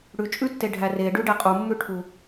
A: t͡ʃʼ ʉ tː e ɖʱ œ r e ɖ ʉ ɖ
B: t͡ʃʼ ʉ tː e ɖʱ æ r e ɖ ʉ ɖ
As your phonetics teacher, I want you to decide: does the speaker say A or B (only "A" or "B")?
B